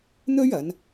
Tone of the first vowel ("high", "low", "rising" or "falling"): high